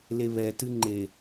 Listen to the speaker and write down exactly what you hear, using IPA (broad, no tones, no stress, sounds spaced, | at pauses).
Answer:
l e β ɛ t ɨ ŋ͡ǃ e